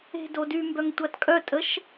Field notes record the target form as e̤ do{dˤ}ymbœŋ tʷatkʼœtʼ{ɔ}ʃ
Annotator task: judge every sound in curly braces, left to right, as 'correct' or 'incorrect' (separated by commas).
incorrect, incorrect